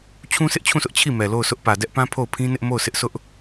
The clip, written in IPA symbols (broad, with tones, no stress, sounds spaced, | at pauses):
t͡ɕʰ ũ˦ sʰ ɪ˦ ʔ t͡ɕʰ ũ˦˨ sʰ ʊ˦ ʔ t͡ɕʰ i˦˨ m ɛ˨ l o˦˨ ʊ̯ s ʊ˦ ʔ p ä˨ d ɛ˦ ʔ p ã˦ pʰ o˦˨ ʊ̯ pʰ ĩ˦ n ɪ˦ ʔ m o˦˨ ʊ̯ s ɪ˦ ʔ s ʊ˦ ʔ